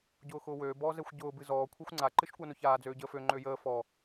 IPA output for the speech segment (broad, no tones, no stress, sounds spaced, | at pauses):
ɟ ʊː x ʊː w øː b ɔː z ɛ xʷ ɟ ʊː b ɨ z ɔː kʷʰ ɛ xʷ ŋ͡ǀ a ǃ ɨ ʃ kʷ a n ʊ ç aː d͡z øː ɟ əː f ø ŋ͡ǃ ø j əː f ɔ